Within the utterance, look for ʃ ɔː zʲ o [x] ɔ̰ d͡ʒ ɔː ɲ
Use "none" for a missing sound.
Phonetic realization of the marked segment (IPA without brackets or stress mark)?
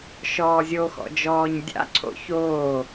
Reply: x